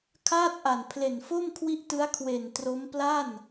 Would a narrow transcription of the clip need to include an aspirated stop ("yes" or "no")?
yes